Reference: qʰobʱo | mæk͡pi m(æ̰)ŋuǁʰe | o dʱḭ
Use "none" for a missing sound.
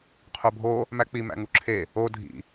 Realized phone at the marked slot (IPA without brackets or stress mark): æ̰